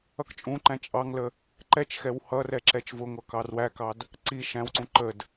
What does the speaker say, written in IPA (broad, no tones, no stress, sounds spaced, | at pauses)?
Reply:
ʌ k t͡ʃʼ ũ ǃ æ̃ t͡ʃʼ ɑ ŋ l ə | ǃ ɛ t͡ʃ x ɛ w h ʌ r ɛ ǁ ɛ t͡ʃ v ʊ ŋʷ ʌ k ɑ r w æ k ɑ d | ǀ i ʃ æ̃ w ǀ ũ ǃ ə d